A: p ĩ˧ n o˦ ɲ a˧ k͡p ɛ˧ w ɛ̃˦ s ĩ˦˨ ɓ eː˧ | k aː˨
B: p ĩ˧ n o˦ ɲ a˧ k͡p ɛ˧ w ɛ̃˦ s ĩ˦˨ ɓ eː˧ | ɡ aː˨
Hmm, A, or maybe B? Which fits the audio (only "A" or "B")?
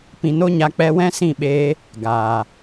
B